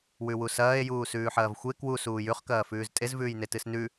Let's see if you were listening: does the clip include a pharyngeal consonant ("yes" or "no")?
yes